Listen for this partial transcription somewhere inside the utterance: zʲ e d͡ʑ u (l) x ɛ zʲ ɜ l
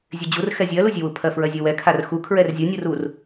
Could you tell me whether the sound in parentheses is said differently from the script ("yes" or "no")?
yes